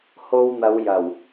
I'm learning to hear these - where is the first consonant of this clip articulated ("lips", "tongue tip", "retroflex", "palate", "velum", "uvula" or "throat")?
throat